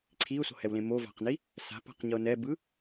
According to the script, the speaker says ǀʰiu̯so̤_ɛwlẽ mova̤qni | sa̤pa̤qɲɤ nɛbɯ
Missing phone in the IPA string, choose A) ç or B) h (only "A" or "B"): B